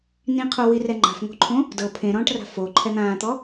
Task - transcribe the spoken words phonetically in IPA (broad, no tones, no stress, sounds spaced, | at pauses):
n ĩ qʰ o w i r ɛ ŋ͡ǃ a̤ f ŋ o̤ ǃʰ õ | d ɤ pʰ ẽ ɾ ɔ̃ː ʈ r a̤ f o ǃʰ ɛ n̪ ãː t̪ ɔ